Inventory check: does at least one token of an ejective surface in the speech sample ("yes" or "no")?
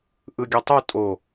yes